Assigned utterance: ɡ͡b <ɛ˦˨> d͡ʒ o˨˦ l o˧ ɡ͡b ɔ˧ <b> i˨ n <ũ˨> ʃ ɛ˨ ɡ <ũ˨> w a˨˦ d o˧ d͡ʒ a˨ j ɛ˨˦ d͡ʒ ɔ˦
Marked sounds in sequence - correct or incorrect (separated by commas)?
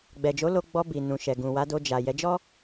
incorrect, correct, correct, correct